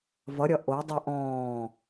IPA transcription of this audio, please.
v ʌ ɾʲ ʌ ʔ o dˤ ɨ ʔ ɔ̃ː

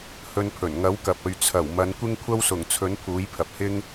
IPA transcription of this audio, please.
h ɵ˧ n pʰ ɵ˨˩ n ŋ ɐ˨˥ w k ɐ˨ p̚ ɵ˨ ɥ t͡sʰ ɐ˨˩ w m ɐ˨˧ n kʷ ɪ˥ ŋ kʷʰ ɐ˥ w s ʊ˨˩ ŋ t͡sʰ ɵ˨˥ n pʰ uː˨˥ j pʰ ɐ˨ p̚ h ɪ˥ ŋ

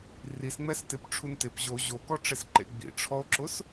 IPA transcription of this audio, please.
r i s ŋ͡m ɛ s t ɪ p ʈ͡ʂʰ u n t ɪ p ʑ o ʑ o k ɔ ʈ͡ʂ e s ǃ ḛ ɡ͡b ḭ ʈ͡ʂʰ ɔ o̯ ǁ ʊ s

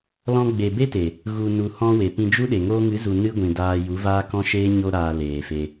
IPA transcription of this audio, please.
l ɔ̃˧ ɡ͡b e˨ b e˦ t e˨ | ɣ u˨ n u˨ h ɔ̃˦ w e˨ p ĩ˧ d͡ʒ u˦ ɗ e˨ ŋ oː˧ ŋ ɨ˨˦ z u˨ n ɨ˦ ɡʷ ĩ˨ d aː˧ j u˨˦ v aː˦ k ɔ̃˦ ʃ eː˦ ɲ o˧ ɾ aː˨ l eː˨ f e˧

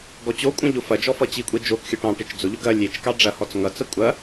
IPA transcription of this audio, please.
ɡ ɔ t͡ɕ o kʷʼ ɐ̃ ʎ ʊ f ɐ d͡ʒ ɔ f ʌ t͡ɕ i kʷʼ e d͡ʒ o k xʲ ʊ ʈ ɑ̃ ʈ e t͡ʃ d͡z ʊ ʎ ʊ ɡ ɐ lʲ e t͡ʃ k ɑ ɖ͡ʐ ɐ h ɔ t͡s ŋ ʌ t͡s ɐ kʷʼ ɐ

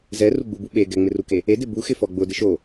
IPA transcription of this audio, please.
z ɛ r u ɡ͡b u b u ɓ e ɡ ɛ ŋ͡m ɪ r u k e | e d ɪ b u x ɪ f ɔ ɡ͡b ʊ d ɪ ʃ o

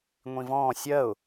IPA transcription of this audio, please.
ŋʷ ĩ v ɔ̃ː sʲ ɜ ʊ̯

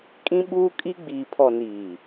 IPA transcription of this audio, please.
kʼ ĩ˦ ɓ uː˦ kʼ i˦ ɡ͡b iː˨ pʰ ɔ˨ n iː˨

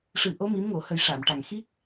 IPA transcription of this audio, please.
ʂ ɨ˨˩˦ ʔ o˧˥ m i˧˥ m ŋ o˨˩ h ə˨˩˦ j ʂ a˨˩˨ m ʈ a˨˩ ŋ x i˦˥ k̚

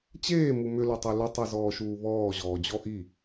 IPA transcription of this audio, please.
t͡ɕ eː m u m ʏ l u tˤ e l ʏ tˤ i z ɔː ʃ uː β ɔː ʑ ɔː d͡ʑ ɔ ʔ i

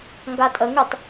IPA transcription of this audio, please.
ŋ ɡ a tʼ ə ŋ y tˤ

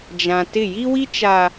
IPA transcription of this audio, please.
d͡ʒ ã˨ t ɪ˦˨ j i˦ w i˦ t͡ʃ a˨

